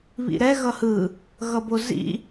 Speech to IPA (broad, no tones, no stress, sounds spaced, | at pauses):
β ḭ ɾ ɛ ɣ ʌ h ɯ | ɣ ʌ b o z ḭ